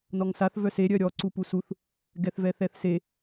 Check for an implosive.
absent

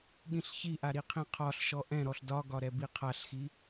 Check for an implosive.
present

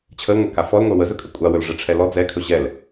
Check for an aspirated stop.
present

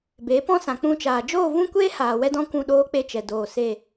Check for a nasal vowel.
present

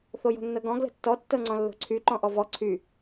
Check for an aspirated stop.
present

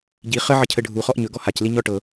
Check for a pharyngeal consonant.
present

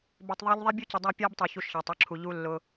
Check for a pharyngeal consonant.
absent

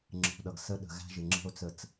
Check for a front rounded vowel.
absent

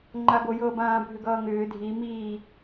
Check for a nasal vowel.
present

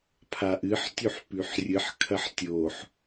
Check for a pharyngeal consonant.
present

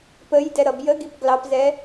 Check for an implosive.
absent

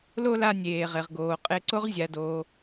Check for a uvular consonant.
present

